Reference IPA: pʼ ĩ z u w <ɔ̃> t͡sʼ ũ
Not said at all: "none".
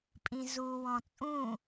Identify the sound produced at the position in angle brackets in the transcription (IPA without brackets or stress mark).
ɔ̃